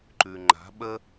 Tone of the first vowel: low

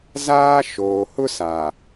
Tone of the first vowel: high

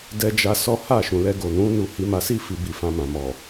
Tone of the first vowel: high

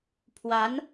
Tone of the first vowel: rising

